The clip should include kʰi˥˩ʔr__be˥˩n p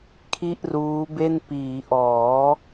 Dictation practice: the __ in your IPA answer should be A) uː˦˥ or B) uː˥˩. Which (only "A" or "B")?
A